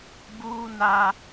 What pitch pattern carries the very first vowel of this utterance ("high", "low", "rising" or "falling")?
high